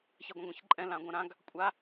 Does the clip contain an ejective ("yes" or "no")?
yes